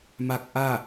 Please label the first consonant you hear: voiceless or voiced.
voiced